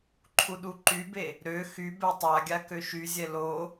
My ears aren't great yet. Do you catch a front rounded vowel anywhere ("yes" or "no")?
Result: yes